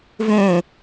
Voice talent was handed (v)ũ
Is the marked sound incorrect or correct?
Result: correct